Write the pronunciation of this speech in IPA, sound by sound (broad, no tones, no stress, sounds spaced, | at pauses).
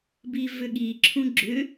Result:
b i v ʏ ɠ i ǁʰ ũ ɡ͡ǁ ʏ